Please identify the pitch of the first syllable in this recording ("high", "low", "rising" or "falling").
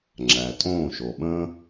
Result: low